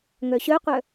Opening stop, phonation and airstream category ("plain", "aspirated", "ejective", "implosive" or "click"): plain